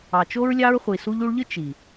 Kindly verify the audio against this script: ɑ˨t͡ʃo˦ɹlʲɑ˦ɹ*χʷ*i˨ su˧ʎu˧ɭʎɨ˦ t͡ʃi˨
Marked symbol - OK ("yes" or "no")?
yes